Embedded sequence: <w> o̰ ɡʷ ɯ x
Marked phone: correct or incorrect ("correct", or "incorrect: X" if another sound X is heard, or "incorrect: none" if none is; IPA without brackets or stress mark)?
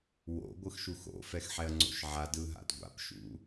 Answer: correct